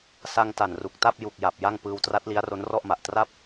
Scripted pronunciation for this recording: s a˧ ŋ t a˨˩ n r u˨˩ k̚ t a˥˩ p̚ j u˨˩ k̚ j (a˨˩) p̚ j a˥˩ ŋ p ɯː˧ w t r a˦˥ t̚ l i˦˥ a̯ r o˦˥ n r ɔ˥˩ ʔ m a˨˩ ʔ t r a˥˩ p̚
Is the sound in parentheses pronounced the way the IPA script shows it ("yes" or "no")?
yes